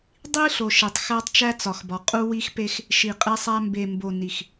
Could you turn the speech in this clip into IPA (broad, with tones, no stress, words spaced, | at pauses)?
dˤi˦ɬo˨ʃe˨tˤ xæ˦tˤt͡ʃæ˦t͡sɒ˨xbɒ˨ qʼu˦wi˦xpe˦x | ʃi˨qʼe˦sˤæ˦ mbe˨mbo˨ ni˨x